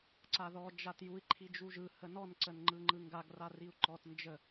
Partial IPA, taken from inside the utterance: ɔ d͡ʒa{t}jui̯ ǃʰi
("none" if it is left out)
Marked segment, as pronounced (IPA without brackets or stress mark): t